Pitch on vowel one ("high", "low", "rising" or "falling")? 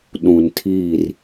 low